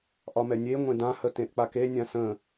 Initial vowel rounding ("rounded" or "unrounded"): rounded